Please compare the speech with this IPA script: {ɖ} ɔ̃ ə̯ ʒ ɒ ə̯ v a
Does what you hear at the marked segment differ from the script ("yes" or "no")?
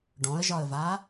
no